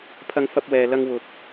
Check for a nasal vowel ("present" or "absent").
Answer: absent